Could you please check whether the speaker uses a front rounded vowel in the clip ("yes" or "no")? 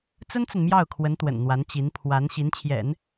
no